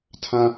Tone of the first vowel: high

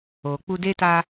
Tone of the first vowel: low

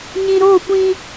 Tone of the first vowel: low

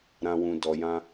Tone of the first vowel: low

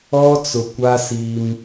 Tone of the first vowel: high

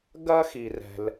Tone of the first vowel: high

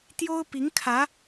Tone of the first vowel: high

